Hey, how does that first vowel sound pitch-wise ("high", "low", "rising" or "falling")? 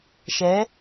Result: rising